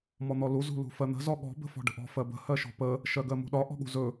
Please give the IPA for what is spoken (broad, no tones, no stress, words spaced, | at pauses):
mɔn̪ɔlu zṳlṳfɜn̪ə̤ zɔɠɔ̤ bə̤fɔ̤ɖə̤ʔɔ̤ fɜbə̤ hɜʃɔ̤pə | ʃɜɡɜmṳɗɒ ʔɔ̤ɠṳzɵ